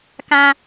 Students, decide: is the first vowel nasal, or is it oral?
nasal